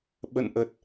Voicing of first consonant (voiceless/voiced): voiced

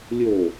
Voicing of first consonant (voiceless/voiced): voiced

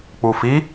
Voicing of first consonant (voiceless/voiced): voiceless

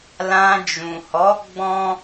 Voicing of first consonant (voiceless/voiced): voiced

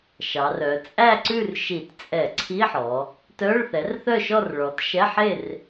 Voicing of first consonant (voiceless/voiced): voiceless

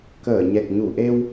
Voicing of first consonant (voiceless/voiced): voiceless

